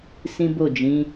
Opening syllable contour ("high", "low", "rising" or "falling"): high